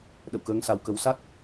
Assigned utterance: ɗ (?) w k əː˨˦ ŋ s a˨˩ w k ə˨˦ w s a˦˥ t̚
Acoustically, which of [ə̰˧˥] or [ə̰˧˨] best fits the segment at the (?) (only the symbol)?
ə̰˧˨